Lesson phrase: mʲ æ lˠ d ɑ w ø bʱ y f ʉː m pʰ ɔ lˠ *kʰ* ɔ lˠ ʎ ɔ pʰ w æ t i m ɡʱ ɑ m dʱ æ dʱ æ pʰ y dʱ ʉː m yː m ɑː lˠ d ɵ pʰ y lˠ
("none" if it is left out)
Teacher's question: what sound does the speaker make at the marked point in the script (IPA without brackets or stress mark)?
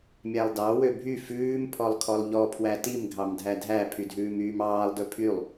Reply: kʰ